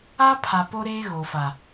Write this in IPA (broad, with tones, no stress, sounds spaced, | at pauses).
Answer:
a˦ pʰ a˨ p o˦ ɾ eː˦ ɣ o˨ f a˨